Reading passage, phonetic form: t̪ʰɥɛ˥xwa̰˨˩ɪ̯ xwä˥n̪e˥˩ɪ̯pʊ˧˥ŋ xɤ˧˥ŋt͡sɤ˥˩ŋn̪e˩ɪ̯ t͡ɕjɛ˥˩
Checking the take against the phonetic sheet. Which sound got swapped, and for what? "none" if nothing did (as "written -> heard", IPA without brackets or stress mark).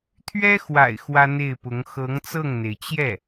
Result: none